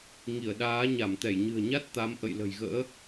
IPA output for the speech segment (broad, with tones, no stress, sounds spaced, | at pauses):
ŋ i˧˩ ə̯ ɗ aː˨˦ ɲ a˧˩ m t̪ ɛ˧˩ j ɲ ɨ̤˨˩ ə̯ ɲ a˦˥ t̚ t̪ a˨˦ m ʔ ə̰˧˨ j l ə̤˨˩ j ɣ ə̰ː˧˥